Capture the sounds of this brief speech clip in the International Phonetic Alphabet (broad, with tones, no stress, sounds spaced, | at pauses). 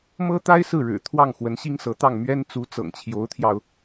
m ɤ˥ t̪ a˥ ɪ̯ s ɹ̩˥˩ ɻ ɻ̩˨˩ t̪ʰ w ɑ˥˩ ŋ x w ə˧˥ n ɕ i˥ ŋ s ɤ˧˥ t̪ ɑ˥˩ ŋ m ɥ ɛ˥ n t͡s u˧˥ t͡s ɤ̰˨˩ ŋ t͡ɕʰ j o˧˥ ʊ̯ t̪ʰ j ɑ˧ ʊ̯